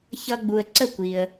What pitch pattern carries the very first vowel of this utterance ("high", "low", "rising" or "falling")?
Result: high